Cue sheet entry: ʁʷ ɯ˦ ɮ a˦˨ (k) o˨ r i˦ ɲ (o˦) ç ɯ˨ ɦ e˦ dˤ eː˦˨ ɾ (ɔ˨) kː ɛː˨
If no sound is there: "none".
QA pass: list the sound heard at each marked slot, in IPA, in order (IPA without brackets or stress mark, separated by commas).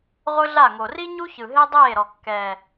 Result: ŋ, u˦, ɔ˨